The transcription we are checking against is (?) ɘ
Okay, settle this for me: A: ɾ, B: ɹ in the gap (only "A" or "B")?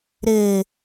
A